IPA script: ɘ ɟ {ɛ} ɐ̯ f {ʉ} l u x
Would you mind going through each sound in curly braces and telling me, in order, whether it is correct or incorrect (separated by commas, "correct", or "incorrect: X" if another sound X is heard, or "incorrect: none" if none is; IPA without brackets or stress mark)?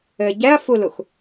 correct, incorrect: u